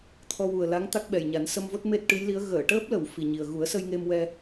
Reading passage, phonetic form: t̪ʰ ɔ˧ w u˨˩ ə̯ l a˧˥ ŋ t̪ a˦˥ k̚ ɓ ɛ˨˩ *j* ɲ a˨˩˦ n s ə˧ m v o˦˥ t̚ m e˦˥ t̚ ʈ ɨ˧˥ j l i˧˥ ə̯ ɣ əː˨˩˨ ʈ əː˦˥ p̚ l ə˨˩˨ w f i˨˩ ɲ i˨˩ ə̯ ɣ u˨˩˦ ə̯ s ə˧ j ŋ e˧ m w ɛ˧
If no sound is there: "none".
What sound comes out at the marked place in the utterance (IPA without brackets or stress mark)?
j